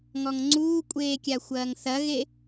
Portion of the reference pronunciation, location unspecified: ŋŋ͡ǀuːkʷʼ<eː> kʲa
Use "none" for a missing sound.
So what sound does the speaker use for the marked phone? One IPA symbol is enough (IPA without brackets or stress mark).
eː